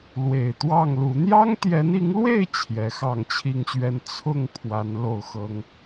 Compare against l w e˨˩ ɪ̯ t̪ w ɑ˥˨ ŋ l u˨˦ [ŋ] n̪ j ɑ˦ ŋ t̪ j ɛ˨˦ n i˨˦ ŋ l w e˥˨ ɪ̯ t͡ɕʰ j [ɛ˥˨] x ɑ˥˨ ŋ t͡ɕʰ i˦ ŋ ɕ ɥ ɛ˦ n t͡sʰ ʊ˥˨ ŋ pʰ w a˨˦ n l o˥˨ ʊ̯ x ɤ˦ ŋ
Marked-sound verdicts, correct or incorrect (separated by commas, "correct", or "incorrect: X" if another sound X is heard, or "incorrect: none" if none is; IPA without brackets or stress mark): incorrect: none, incorrect: ɛ˨˦